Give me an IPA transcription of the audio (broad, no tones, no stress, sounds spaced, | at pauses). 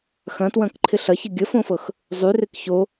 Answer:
x ɐ̃ t w ɐ̃ k ǃʰ ɪ ɬ ɐ ç ɪ ɡʲ ə f õ f ɤ x | zˤ y r ɪ k ç o